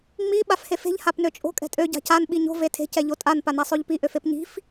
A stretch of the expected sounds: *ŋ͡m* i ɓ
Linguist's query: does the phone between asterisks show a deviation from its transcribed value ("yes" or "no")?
no